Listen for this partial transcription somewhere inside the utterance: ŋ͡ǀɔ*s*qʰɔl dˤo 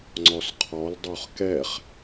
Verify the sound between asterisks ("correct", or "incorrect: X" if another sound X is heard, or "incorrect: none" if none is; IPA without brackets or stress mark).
correct